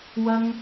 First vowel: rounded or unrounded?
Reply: unrounded